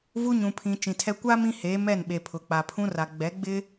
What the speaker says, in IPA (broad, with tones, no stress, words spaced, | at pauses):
vu˦ɲũ˨pʰĩ˨ t͡ʃĩ˨tʰɛ˦ kʷa˦ mĩ˦heː˨˦ mɛ˦˨nɓe˨ pʰʊ˨ k͡pa˨pʰũ˦ra˨ ɡ͡bɛ˨˦ɡ͡bɪ˦